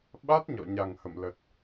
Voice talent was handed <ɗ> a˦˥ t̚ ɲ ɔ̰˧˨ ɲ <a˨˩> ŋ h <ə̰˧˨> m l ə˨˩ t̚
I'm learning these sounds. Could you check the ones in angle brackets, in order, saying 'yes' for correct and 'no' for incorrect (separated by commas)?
no, yes, yes